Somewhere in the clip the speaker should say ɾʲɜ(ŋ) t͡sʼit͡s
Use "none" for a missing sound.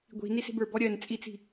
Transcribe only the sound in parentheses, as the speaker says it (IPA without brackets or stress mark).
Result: n